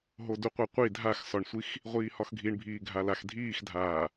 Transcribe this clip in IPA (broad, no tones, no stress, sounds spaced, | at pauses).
ɦ o d u qʷ a qʷ i dʱ a x s ɒ ɳ sʷ i x | ʁʷ iː h ɒ x ɡʱ i ɳ bʱ iː ɡʱ a l a x dʱ iː x dʱ aː